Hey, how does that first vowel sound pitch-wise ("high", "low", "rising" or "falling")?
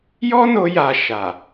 high